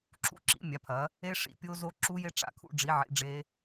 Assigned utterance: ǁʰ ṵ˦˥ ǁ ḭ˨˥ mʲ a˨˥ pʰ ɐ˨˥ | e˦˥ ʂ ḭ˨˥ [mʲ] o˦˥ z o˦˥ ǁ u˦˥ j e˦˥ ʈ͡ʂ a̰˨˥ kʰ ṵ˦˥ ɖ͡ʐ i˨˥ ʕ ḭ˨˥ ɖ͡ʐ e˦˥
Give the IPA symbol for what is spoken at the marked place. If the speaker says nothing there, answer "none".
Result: pʲ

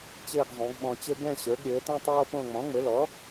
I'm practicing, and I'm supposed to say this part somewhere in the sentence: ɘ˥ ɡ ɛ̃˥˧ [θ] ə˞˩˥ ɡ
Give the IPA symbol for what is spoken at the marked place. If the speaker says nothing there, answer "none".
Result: ɕ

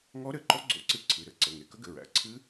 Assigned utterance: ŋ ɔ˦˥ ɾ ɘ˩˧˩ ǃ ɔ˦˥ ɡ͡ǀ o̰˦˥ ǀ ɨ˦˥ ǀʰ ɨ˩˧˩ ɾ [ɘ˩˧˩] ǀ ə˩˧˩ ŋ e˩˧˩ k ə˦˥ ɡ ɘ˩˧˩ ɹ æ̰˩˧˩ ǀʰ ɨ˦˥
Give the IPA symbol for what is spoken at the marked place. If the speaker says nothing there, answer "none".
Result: ɘ˩˧˩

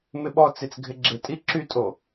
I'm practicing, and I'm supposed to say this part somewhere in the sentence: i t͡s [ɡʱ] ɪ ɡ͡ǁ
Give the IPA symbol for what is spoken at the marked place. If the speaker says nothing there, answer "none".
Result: ɡʱ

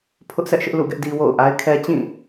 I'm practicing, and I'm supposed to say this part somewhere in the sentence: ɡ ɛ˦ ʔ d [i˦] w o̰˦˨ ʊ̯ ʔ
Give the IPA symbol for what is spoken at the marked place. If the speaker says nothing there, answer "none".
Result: i˦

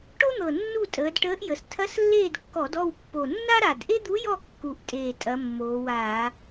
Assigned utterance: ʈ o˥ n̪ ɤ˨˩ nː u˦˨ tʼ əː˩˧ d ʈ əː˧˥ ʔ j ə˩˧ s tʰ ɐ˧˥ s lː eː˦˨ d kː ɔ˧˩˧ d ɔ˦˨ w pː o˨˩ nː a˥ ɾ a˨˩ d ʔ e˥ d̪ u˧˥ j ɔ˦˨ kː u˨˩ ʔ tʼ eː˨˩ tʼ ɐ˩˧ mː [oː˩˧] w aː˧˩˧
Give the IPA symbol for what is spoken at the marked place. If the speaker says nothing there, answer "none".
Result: oː˩˧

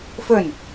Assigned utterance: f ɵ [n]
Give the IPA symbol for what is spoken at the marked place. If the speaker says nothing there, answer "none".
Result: n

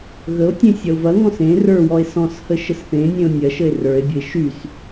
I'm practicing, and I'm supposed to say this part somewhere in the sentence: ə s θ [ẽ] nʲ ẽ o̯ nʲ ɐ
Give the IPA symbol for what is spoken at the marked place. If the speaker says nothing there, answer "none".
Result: ẽ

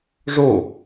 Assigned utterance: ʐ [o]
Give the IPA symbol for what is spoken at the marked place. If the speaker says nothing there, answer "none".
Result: o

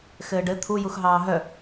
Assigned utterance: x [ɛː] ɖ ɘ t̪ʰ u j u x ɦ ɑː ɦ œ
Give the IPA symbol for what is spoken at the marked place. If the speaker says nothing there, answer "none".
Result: ɘː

